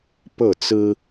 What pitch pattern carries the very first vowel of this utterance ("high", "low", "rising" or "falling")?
falling